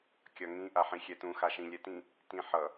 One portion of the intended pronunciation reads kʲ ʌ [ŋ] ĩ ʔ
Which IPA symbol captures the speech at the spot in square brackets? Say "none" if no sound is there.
ŋ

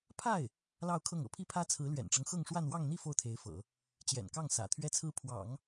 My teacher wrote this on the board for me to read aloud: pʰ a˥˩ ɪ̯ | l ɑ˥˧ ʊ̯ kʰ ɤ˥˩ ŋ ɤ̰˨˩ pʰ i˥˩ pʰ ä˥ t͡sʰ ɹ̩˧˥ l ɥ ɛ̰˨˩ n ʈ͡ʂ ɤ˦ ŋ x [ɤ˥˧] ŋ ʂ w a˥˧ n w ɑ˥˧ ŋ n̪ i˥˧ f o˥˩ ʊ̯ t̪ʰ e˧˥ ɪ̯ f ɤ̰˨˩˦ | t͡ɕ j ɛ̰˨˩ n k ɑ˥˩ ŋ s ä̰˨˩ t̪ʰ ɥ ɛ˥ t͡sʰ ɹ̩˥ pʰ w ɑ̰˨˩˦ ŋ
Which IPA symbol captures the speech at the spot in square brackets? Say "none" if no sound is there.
ɤ˥˧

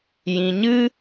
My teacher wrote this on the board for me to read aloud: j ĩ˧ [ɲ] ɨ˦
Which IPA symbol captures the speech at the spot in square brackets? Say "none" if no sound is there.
ɲ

